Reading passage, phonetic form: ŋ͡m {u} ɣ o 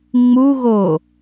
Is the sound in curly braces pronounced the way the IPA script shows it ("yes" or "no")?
yes